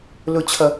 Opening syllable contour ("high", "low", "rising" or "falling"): high